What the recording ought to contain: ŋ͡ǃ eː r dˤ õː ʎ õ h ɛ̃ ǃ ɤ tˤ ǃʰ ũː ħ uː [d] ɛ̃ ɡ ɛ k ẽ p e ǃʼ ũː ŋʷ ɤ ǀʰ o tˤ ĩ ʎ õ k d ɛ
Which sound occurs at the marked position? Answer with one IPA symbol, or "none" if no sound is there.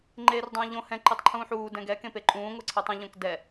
d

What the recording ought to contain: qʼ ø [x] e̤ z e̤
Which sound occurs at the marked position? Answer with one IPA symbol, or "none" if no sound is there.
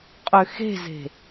x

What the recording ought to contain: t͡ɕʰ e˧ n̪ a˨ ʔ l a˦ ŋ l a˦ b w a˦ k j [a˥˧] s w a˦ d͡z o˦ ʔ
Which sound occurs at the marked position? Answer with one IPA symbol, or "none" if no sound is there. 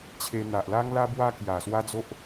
a˨˩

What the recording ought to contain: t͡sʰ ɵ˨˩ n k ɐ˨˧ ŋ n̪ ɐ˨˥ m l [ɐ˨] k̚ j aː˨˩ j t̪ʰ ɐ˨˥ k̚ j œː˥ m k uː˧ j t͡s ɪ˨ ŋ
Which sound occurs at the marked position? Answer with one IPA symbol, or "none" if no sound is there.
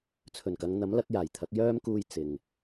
ɐ˨˥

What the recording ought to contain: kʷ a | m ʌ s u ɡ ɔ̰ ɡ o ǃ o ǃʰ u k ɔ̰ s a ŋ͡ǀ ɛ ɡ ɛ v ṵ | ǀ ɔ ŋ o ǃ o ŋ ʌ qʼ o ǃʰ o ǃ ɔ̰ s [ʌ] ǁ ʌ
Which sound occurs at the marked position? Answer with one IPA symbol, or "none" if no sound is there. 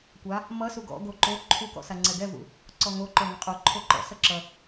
ʌ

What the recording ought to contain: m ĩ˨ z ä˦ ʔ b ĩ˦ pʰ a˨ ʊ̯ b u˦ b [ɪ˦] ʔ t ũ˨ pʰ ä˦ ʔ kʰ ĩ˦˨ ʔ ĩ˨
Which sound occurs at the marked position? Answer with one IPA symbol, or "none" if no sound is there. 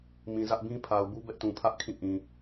ɛ˦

